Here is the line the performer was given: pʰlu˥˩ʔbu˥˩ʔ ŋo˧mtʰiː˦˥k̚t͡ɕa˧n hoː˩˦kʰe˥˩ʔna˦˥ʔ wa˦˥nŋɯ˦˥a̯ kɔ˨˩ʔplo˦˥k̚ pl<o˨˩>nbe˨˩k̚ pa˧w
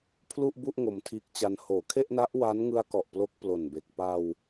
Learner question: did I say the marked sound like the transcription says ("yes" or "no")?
yes